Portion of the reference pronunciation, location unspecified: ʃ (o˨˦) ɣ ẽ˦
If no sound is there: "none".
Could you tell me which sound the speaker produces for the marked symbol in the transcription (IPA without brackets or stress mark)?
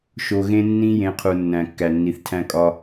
o˨